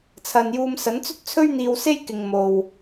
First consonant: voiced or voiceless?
voiceless